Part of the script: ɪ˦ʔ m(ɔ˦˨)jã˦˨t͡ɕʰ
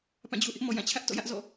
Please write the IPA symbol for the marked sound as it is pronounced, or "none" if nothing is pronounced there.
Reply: ɔ˨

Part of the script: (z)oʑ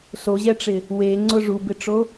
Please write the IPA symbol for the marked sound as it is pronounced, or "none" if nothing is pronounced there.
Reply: s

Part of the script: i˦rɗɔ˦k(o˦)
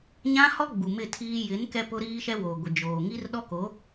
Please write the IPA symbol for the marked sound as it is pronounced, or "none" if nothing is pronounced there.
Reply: o˨˦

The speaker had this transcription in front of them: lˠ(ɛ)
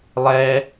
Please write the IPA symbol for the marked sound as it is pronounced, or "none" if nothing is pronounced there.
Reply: ɛ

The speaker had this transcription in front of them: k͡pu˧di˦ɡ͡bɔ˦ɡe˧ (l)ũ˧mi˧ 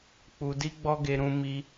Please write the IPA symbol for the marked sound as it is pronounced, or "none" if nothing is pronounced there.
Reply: ɾ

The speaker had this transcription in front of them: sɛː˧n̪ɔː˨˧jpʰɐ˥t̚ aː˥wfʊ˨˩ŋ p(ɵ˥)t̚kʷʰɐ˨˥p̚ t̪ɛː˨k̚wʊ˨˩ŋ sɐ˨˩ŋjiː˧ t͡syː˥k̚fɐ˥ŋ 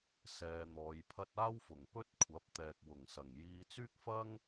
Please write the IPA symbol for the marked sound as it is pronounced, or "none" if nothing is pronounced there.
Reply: ɵ˥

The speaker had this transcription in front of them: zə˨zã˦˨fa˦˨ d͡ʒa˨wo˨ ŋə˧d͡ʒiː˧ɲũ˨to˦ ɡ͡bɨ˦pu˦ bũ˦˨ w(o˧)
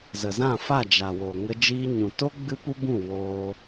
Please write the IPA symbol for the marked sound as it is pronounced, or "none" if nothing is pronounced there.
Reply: oː˧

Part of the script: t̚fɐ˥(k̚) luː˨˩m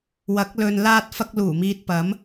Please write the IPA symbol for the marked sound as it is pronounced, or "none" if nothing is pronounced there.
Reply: k̚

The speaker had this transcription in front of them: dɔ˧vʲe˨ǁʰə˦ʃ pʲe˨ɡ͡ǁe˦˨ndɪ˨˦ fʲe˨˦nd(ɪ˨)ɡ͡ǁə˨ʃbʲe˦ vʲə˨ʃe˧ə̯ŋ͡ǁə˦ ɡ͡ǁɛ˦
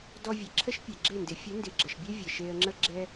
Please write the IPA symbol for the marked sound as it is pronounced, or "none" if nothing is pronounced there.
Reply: ɪ˨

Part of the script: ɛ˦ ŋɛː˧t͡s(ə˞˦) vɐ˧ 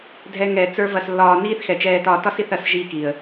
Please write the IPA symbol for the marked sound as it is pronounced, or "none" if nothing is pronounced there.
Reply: ə˞˦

